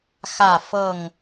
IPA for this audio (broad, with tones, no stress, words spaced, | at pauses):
xä˥˨ fɤ˥˨ŋ